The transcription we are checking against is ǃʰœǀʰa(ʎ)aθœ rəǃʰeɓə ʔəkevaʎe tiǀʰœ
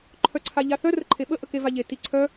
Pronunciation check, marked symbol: correct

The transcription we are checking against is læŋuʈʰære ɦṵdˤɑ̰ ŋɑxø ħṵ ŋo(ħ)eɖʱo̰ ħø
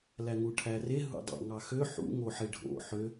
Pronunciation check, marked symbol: correct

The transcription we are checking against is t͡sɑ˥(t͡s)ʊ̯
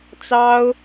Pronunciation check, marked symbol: incorrect: none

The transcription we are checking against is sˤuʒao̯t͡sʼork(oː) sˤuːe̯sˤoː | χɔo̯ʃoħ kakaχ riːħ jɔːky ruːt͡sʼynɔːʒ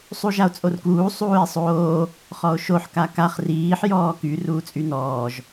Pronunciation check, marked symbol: incorrect: uː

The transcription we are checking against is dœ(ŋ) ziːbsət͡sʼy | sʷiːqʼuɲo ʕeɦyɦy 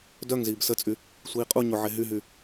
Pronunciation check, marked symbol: correct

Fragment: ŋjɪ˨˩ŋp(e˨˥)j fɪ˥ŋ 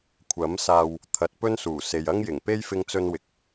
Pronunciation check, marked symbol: incorrect: e˥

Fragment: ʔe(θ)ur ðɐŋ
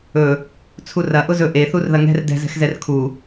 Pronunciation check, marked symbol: correct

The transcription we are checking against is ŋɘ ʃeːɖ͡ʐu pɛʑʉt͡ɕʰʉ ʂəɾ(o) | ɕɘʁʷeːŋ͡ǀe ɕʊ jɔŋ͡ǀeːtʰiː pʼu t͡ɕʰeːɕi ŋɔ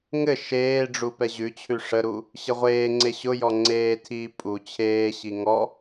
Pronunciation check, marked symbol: incorrect: u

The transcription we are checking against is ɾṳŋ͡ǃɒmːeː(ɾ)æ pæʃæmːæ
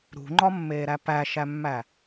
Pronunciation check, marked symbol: correct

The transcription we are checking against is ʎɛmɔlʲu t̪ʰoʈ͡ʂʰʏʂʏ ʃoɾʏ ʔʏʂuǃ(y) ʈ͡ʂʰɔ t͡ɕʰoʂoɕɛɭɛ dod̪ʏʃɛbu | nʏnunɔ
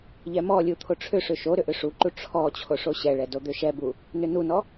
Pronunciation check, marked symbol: incorrect: u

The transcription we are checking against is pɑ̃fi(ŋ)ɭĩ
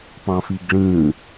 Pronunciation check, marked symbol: incorrect: ɡ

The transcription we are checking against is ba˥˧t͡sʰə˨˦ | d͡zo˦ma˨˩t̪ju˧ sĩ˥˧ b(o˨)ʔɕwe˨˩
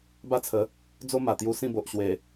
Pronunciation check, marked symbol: correct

